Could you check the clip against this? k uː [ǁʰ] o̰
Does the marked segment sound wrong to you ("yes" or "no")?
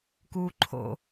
yes